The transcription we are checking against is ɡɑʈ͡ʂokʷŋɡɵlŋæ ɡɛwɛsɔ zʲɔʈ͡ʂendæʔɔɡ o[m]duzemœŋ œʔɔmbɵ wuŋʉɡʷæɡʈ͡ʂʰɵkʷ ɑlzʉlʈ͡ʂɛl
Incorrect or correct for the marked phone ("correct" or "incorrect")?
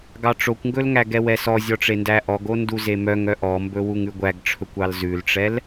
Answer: incorrect